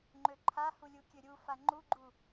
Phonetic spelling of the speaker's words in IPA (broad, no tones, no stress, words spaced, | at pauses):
ŋ͡ǃøǃʰahu lʲukʲøɾʲufa ŋ͡ǃuɡ͡ǃu